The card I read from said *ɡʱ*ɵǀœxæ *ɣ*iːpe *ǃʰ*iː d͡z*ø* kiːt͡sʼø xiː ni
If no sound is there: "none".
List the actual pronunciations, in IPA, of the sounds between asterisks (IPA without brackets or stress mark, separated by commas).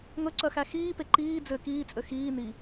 ŋ, x, ǃ, ø